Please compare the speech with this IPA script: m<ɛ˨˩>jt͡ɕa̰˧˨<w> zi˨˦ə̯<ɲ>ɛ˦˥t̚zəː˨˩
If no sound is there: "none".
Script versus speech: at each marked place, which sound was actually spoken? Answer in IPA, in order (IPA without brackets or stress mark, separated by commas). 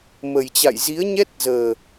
ə˨˩, j, ɲ